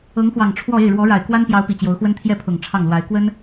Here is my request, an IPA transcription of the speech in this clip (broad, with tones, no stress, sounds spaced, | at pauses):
ɤ˧˥ ŋ x w ɑ˨˩ ŋ ʈ͡ʂʰ w ɔ˥˧ e˥˩ ɪ̯ ɻ w ɔ˧˥ ɻ a˨˩ ɪ̯ k w a˥ n p j ɑ˧˥ ʊ̯ p i˨˩ t͡ɕ j o˧˥ ʊ̯ x w ə˥ n t̪ʰ j ɛ˥˩ pʰ ʊ˨˩ ŋ ʈ͡ʂʰ ɑ˥˩ ŋ l w a˧˥ ɪ̯ k w ə˥ n